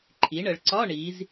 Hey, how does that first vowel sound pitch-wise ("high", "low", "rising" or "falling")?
rising